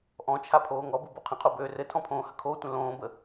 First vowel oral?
no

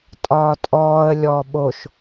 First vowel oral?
yes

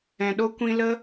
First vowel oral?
no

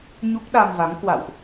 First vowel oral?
yes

